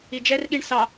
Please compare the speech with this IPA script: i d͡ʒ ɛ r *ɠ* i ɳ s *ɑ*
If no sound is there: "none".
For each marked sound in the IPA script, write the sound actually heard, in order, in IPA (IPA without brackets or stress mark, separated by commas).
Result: ɠ, ɑ